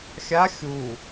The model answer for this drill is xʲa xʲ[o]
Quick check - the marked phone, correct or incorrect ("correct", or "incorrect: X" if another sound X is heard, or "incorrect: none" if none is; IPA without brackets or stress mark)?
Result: incorrect: u